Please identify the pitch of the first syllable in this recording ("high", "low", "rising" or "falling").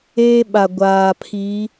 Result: high